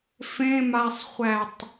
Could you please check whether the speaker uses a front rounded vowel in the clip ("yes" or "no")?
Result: no